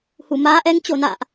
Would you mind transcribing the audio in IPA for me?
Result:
hu˧˩ maː˨˦ʔɛ˨˦ŋ t͡ɕo˧˩na̰ː˧˨ʔ

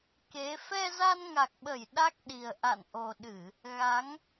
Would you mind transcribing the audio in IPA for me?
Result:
ke˨˦ fɛ˧za˧nŋa˨˩k̚ɓə˧˩j ɗa˦˥k̚ɗi˨˩ə̯ ʔa̰˧˨nʔo˨˩ɗɨ˧˩˨ | ɣa˨˦ŋ

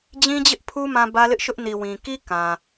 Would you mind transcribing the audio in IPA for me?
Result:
d͡ʑĩ˦d͡ʑɪ˦ʔpʰu˦ mã˦bä˦lɪ˦ʔʃʊ˦ʔ ni˨wĩ˨ ki˦ kã˨

